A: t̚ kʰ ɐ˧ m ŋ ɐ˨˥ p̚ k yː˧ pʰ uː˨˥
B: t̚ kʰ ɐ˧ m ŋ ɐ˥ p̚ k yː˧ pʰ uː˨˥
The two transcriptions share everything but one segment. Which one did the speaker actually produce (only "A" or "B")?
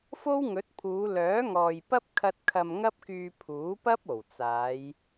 B